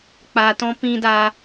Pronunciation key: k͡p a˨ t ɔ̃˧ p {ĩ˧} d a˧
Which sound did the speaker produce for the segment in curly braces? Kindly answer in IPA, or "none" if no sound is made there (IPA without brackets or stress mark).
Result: ĩ˧